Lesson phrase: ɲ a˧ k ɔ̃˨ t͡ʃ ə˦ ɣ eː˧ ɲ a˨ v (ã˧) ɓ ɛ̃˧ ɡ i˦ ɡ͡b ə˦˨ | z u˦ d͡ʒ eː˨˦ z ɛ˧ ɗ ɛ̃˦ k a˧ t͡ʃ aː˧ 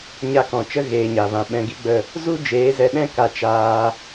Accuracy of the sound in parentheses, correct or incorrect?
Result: correct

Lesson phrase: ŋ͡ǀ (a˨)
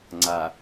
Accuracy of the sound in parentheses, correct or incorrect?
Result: correct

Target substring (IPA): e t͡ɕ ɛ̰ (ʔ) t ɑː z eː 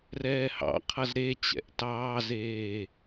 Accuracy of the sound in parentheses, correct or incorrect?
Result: correct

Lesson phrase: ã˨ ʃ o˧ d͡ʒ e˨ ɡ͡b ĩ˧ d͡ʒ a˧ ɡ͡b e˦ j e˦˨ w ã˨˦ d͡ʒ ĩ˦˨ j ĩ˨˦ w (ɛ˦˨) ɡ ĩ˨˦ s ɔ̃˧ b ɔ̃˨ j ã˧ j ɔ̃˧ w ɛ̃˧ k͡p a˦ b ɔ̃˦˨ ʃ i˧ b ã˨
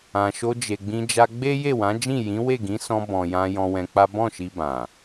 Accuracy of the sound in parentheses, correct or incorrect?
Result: incorrect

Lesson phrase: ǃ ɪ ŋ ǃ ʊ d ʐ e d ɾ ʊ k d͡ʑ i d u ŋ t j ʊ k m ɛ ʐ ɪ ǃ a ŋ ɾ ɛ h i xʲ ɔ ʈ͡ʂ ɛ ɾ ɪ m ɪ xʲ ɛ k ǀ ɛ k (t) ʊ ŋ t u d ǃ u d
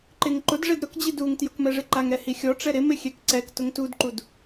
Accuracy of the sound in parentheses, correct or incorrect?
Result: correct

